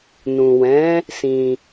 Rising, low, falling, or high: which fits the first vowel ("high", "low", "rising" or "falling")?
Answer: low